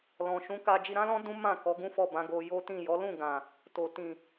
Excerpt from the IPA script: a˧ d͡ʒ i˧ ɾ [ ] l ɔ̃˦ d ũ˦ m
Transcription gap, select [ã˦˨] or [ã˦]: ã˦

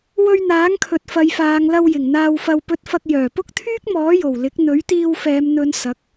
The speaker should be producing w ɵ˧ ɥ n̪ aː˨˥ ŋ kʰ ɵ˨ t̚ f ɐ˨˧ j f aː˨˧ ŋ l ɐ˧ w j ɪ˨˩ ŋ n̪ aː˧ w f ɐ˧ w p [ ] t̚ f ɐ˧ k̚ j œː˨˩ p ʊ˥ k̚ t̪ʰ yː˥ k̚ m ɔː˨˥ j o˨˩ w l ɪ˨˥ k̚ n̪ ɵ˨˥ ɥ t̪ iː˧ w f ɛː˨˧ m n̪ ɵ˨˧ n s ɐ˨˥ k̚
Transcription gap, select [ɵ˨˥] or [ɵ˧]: ɵ˧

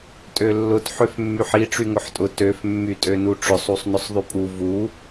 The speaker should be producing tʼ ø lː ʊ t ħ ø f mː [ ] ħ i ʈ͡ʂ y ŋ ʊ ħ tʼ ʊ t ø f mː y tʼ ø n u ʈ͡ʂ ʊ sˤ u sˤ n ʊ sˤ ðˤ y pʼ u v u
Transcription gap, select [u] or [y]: y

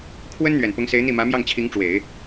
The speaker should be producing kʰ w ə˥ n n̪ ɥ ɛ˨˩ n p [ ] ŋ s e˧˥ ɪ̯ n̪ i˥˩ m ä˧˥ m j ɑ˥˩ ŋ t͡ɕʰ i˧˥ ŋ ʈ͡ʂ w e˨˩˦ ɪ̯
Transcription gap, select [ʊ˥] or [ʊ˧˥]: ʊ˧˥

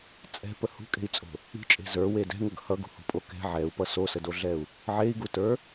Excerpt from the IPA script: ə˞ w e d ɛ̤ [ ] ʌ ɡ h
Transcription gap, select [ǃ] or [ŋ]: ŋ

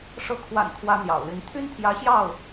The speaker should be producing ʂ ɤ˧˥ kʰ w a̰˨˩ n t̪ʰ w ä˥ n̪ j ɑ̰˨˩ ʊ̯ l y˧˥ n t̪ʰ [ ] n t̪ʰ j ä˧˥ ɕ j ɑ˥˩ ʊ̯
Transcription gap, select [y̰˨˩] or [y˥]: y˥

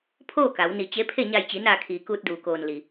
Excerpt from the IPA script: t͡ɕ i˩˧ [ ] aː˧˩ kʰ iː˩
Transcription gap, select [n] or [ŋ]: n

